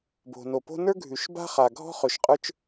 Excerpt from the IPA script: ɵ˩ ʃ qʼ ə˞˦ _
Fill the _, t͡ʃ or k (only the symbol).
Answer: t͡ʃ